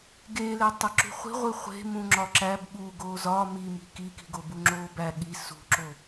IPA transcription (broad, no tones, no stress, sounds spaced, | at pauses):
ɡ e l e tˤ e ǁ ṳ χʷ i̤ ʁʷ i χʷ e̤ m ũ ŋ͡ǁ ɒ ǁ æ b ɓ u ɡ oː z ɒː m i m i̤ k i k i̤ ɡ o b u ŋ͡ǁ oː b æ ɠ i s ṳ ǁ o